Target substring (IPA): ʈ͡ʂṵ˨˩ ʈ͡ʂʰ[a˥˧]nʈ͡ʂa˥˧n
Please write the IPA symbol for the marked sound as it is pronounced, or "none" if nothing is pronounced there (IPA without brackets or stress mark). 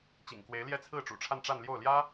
a˥˧